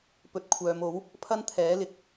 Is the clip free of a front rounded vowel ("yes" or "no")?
no